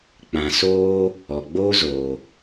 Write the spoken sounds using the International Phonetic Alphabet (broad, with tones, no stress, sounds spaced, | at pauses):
k͡p ã˨ s oː˦ | ɔ˨ ɡ͡b oː˦ z oː˨